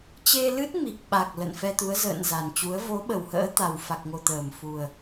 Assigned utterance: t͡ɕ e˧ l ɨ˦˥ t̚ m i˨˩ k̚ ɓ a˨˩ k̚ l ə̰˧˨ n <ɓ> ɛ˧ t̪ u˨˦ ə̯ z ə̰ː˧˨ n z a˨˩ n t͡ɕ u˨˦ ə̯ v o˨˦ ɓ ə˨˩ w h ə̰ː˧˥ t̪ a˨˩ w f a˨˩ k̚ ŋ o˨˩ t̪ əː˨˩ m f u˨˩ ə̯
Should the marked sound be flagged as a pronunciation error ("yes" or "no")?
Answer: yes